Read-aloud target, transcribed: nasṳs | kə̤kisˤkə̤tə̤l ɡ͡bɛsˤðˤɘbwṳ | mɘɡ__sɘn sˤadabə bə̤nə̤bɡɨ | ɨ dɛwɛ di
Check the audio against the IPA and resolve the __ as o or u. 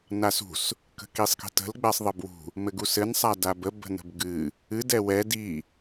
u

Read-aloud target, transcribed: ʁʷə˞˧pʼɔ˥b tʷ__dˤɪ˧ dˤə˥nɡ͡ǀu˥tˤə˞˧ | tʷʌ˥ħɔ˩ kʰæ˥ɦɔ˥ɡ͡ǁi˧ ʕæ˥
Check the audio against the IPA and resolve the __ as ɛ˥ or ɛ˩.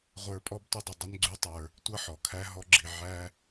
ɛ˥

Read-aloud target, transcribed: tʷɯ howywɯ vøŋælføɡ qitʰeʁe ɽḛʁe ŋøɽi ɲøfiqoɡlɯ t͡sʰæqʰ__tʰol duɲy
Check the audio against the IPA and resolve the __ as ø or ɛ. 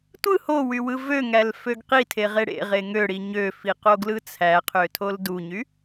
ø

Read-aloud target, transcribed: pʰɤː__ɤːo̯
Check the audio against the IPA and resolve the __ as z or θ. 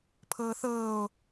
θ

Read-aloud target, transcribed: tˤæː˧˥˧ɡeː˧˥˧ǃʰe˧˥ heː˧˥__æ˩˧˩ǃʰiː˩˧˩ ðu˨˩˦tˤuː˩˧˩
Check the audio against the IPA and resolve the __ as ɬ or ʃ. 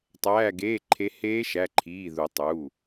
ʃ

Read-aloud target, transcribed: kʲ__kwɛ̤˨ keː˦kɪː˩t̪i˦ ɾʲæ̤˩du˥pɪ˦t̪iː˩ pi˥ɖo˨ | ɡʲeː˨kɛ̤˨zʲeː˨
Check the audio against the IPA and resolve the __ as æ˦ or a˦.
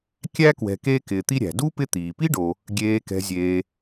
æ˦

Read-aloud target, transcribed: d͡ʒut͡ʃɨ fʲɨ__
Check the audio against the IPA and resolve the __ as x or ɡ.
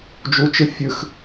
x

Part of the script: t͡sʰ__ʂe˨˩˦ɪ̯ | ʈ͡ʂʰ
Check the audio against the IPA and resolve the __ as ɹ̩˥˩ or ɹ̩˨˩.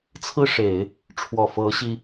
ɹ̩˥˩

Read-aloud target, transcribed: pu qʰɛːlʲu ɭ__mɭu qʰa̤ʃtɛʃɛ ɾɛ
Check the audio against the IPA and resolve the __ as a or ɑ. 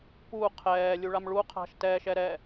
a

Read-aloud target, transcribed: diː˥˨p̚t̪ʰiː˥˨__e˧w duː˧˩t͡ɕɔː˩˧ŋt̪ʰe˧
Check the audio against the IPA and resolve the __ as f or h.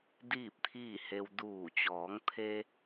h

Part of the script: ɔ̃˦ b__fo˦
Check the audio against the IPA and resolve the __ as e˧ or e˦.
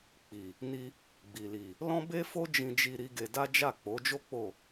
e˦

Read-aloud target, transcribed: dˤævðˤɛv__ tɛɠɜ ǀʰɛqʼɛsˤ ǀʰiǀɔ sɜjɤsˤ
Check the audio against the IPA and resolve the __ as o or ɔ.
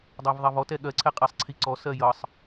ɔ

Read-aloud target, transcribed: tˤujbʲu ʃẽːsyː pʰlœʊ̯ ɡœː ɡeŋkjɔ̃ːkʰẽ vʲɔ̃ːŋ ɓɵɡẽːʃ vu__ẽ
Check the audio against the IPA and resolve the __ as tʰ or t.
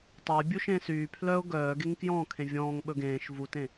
t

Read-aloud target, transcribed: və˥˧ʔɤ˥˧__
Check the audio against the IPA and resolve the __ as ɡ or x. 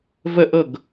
ɡ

